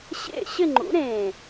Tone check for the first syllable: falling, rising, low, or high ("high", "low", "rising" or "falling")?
falling